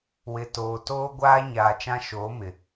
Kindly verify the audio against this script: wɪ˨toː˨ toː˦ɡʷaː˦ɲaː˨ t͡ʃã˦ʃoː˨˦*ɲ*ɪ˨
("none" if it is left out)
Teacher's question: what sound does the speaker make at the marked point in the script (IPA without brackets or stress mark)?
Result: m